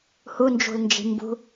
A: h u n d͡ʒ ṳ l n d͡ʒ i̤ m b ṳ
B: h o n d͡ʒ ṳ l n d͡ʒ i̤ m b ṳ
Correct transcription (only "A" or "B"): A